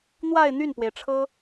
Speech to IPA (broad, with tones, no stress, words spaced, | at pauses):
n̪wa˥˧ɪ̯n̪y˥˩npwe˩ɪ̯ ʈ͡ʂʰɤ˥